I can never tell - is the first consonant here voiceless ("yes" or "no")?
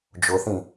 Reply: no